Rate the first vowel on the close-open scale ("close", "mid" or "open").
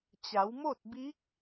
open